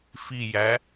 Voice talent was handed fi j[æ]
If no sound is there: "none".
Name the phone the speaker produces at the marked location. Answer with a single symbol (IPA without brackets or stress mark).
æ